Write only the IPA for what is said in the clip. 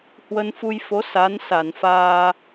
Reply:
h w ə˧ n f u˧ j f o˨˦ s a˨˦ n s a˧˩ n f aː˧

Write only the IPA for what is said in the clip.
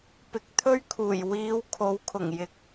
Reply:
p ɪ˨˥ k̚ t̪ʰ ɵ˥ ɥ kʰ uː˨˩ j w iː˨˧ w kʰ o˨˧ w kʰ ʊ˨˩ ŋ j ɪ˨˥ k̚

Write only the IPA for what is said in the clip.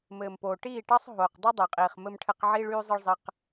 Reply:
m ɘː˨ m p oː˨ ʈ iː˦˨ ʈ ɑ˦ sˤ ɦ oː˨ q dˤ u˦ dˤ ɜ˨ qʼ iː˨ χ m ɘ˦ m ʈʰ ɘ˦ q ʕ iː˦ ɭ yː˦ zˤ ə˦ ɭ zˤ ɘ˦ q

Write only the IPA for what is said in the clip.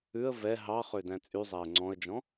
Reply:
ʉ ə̯ v ɛ ɦ ɑ χ ø d æ̃ t͡sʼ y zˤ æ ə̯ ŋ͡ǀ ɔ̃ ə̯ d͡ʒ ɔ̃

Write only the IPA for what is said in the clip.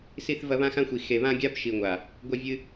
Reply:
s i˧ θ v ɐ˧ β ã˧ x ã˧ xʷ i˨ x e˨ β ã˧ ɡʲ a˧ b ʃ i˨ ŋʷ a˨ | ɡʷ ɐ˧ vʲ ɨ˧

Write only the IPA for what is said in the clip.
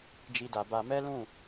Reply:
d͡ʒ i˧ d a˨ b a˧ m ɛ˦ l ũ˦˨

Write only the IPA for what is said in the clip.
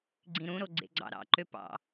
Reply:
ɡ͡ǀ ĩ ɾ ũ ɾ o ɡ͡ǀ ḛ ɡ͡ǀ ɑ̰ ɾ ɑ̰ ǃ ø p ɑ̰

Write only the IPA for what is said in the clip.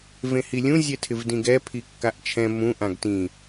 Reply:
v ẽ h i lʲ ũ zʲ ɛ tʰ ɪ v d ĩ ɡ ɛ pʰ i kː a ʔ t͡ʃʰ ɛ̃ m ũ ʔ ã ɡ t ĩ

